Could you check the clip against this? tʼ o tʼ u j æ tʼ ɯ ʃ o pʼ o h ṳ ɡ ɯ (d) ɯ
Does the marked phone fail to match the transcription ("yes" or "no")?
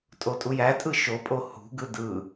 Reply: no